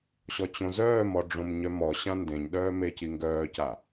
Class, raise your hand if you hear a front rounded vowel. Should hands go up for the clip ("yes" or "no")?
yes